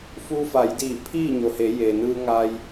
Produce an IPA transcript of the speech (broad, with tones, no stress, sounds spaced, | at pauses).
f u˧ f a˩˧ j d iː˧˩ pʰ iː˥˨ ɲ o˩ h e˩˧ j eː˩ n ɯː˧ ŋ a˧ j